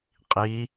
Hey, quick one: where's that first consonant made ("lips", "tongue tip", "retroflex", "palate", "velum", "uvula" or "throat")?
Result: uvula